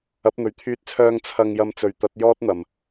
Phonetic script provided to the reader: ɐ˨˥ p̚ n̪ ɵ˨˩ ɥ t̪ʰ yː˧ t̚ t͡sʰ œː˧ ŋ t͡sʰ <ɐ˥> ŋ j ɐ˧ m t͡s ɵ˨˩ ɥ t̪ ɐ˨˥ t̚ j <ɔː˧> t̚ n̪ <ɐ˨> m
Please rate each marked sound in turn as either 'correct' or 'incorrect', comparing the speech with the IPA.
incorrect, incorrect, incorrect

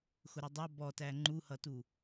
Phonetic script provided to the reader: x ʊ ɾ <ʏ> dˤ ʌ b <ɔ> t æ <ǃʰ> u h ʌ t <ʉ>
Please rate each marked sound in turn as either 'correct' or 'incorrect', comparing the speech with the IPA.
incorrect, correct, incorrect, incorrect

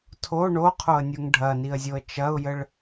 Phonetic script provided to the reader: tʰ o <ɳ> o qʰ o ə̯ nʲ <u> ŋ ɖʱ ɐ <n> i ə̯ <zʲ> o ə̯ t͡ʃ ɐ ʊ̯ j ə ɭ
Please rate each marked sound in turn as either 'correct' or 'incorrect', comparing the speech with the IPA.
correct, correct, correct, correct

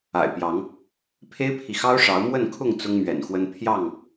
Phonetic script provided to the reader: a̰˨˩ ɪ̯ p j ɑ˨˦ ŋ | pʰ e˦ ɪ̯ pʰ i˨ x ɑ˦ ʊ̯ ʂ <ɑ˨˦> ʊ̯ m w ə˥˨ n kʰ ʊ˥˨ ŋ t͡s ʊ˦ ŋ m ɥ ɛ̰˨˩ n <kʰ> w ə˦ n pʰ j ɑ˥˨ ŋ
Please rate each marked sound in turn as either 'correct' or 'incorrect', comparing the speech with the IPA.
correct, incorrect

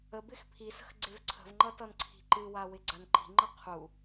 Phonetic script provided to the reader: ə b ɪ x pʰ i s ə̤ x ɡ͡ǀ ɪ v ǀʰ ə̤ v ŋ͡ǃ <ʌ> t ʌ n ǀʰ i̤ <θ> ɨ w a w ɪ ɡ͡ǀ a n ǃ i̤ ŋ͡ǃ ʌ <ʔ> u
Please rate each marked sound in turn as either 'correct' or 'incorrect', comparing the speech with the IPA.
correct, incorrect, incorrect

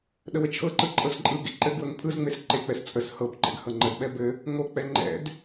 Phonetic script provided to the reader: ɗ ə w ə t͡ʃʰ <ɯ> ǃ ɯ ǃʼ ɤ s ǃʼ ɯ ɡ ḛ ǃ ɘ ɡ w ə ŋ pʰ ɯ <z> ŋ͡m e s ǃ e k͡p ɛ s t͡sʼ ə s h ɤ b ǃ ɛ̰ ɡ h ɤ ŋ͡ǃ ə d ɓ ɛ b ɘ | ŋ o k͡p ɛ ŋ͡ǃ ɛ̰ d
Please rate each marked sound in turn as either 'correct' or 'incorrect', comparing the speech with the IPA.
incorrect, correct

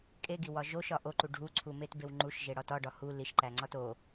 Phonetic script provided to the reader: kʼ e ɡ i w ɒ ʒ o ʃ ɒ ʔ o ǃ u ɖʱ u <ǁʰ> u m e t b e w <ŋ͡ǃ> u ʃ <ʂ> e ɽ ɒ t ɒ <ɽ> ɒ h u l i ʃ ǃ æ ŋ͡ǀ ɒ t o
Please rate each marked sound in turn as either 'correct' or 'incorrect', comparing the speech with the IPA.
incorrect, correct, incorrect, incorrect

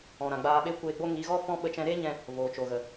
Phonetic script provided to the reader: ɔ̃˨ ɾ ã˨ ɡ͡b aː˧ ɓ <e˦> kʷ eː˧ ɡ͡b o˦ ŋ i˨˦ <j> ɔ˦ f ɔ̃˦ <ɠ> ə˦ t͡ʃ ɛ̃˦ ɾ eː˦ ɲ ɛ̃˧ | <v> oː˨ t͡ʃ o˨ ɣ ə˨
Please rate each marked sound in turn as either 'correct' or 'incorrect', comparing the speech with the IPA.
correct, incorrect, incorrect, correct

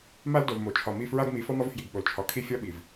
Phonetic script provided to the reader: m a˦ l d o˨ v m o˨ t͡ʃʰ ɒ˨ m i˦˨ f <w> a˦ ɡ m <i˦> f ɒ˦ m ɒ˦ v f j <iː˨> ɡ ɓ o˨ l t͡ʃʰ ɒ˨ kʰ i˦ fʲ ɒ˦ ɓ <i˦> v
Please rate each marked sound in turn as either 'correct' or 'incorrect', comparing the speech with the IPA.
incorrect, incorrect, incorrect, incorrect

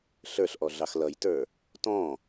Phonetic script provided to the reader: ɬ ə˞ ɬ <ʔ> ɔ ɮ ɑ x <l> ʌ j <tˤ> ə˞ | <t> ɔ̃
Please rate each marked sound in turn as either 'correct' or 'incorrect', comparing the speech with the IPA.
correct, correct, incorrect, correct

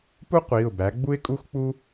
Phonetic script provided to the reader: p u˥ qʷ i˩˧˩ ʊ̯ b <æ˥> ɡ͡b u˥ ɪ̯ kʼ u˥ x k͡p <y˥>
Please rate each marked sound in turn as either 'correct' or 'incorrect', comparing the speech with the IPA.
incorrect, incorrect

